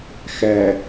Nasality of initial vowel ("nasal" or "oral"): oral